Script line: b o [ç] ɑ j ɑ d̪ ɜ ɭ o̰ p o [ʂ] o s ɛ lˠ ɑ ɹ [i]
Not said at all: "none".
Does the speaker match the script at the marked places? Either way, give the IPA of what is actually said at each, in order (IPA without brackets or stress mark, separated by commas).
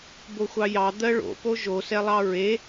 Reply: xʷ, ʒ, e